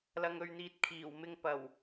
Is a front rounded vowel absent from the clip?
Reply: yes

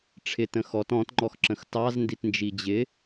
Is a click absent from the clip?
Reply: no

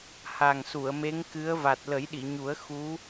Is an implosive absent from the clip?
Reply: no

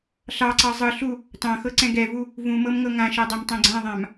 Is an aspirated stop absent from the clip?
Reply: yes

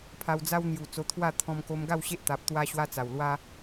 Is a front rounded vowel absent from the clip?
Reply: yes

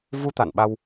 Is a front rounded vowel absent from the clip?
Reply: yes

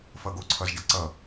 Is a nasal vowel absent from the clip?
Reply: yes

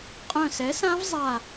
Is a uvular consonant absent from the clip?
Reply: no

